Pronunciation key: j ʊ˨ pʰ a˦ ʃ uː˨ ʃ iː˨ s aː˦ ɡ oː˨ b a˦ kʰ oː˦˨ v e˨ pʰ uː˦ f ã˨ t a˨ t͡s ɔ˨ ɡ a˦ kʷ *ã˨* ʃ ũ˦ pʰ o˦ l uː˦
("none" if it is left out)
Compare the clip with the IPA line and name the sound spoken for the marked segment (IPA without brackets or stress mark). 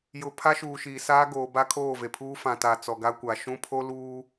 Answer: a˨